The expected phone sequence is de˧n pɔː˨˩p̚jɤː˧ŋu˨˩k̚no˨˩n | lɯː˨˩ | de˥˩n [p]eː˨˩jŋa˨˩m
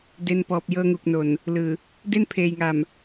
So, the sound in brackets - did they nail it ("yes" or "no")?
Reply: no